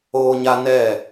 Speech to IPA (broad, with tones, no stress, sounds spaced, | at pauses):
oː˦ ɲ a˦ n ɛ˦˨